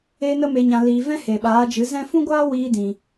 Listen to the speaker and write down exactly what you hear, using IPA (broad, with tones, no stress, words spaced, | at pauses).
eː˧nə˧me˨ɲã˨ liː˨vɛ̃˦ he˨ɓaː˨˦d͡ʒɨ˨˦ zɛ̃˧fũ˦ɡʷaː˦ wiː˧dĩ˨